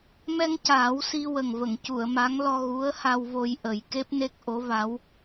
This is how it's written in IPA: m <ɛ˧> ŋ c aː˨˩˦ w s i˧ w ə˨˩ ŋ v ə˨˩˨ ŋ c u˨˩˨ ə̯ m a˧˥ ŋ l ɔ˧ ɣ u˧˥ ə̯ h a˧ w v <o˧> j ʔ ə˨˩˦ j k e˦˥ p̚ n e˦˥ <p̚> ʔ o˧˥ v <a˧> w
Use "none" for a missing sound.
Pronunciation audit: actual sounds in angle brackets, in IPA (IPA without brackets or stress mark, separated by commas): ɛ˧, o˧, k̚, a˧˥